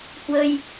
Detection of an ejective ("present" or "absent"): absent